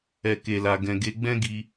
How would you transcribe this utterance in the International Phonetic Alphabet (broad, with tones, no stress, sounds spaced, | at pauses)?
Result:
ɛ˨ k e˨ l a˨ ɡ ɛ̃˨ ɡ e˨˦ ɡ͡b ɛ̃˦ ɡ i˧